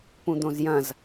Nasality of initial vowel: nasal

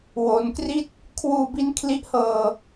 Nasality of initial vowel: oral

